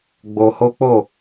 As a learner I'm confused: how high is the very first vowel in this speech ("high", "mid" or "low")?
mid